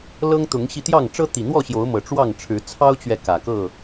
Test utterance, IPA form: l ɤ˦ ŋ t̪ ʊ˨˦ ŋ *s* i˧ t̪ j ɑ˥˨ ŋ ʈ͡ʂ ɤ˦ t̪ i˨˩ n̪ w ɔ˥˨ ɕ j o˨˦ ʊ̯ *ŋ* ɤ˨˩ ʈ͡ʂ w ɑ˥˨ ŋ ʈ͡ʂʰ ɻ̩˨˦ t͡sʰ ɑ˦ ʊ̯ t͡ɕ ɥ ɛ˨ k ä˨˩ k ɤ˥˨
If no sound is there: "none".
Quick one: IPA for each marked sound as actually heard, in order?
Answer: ɕ, m

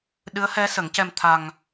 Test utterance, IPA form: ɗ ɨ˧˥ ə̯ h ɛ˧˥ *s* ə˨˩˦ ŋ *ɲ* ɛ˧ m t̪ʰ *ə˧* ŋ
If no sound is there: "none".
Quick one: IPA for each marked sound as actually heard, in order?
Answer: s, c, a˧

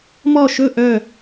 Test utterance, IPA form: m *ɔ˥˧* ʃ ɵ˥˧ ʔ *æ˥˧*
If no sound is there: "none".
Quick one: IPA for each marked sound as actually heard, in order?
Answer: ɔ˥˧, œ˥˧

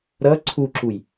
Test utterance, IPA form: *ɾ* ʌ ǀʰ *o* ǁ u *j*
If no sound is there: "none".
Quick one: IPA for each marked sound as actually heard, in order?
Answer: ɾ, u, j

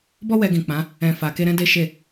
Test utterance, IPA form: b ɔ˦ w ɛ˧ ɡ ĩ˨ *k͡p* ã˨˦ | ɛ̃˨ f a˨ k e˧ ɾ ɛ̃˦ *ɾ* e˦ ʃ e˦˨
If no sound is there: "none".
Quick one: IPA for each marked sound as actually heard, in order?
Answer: k͡p, d

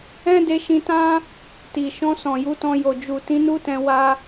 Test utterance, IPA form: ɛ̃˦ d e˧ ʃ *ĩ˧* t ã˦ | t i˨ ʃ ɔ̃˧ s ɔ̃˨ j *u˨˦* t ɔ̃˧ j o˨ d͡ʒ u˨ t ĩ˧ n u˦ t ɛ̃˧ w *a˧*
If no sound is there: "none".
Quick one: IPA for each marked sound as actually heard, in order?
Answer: ĩ˧, u˨˦, a˧

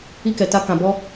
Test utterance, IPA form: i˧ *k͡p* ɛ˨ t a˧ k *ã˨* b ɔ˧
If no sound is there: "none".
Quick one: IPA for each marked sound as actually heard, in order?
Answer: k, ã˨

